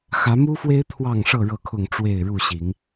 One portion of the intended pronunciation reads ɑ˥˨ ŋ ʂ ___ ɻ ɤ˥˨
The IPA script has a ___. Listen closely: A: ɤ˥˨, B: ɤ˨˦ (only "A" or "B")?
A